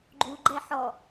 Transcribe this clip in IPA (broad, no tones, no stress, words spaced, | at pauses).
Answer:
ɡ͡ǃu ɡ͡ǃɛħɔ